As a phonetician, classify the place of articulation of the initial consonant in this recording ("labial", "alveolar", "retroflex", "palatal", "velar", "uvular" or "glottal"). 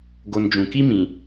velar